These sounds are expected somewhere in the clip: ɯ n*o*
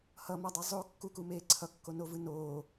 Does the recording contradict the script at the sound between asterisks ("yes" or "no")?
yes